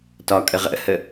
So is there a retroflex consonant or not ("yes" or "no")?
no